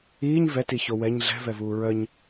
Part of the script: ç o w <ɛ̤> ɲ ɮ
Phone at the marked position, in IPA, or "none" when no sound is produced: ɛ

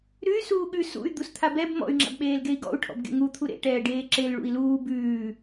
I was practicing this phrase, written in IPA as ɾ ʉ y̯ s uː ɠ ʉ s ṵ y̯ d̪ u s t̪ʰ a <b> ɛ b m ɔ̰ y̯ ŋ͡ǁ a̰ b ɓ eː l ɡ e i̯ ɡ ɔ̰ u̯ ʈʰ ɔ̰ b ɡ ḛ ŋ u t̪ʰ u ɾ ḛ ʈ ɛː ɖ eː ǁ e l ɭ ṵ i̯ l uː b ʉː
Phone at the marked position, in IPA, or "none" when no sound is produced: b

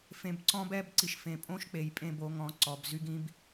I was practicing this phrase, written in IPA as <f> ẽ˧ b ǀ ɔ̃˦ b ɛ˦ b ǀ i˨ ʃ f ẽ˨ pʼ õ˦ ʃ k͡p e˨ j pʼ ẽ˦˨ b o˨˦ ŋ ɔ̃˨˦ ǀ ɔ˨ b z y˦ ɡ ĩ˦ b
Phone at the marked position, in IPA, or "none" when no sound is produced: f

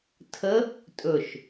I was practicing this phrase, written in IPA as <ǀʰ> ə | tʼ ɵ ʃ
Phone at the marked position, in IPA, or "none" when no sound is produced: tʰ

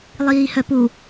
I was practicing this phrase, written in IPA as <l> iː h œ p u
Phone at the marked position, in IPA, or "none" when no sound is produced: lˠ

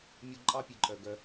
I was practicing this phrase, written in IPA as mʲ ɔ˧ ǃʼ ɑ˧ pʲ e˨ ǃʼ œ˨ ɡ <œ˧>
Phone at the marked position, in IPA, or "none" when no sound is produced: œ˧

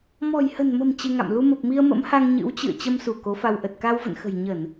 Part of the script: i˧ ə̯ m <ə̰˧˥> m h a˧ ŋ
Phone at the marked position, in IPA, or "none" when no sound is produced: ə̰˧˥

